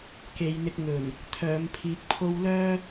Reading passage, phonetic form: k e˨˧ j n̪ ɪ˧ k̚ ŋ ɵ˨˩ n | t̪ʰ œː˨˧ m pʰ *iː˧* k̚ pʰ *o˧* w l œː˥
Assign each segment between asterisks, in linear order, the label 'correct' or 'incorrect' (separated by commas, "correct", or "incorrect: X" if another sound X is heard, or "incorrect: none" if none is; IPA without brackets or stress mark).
correct, correct